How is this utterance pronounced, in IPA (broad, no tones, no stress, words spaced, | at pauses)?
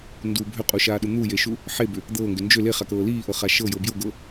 ndu bʱʏqʼuʃaːɗu n̪ujeʃu | ħebʏ | d̪ɤːŋɡʏ nd͡ʒʏ leχakɤː liːʔɤχa ʃɤjɤ bjɤɡɤː